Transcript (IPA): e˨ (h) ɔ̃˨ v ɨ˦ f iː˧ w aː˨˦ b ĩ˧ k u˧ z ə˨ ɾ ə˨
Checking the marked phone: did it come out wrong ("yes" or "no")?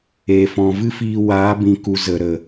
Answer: yes